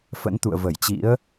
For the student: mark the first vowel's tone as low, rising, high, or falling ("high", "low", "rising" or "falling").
rising